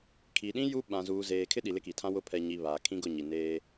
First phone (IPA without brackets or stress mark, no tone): kʰ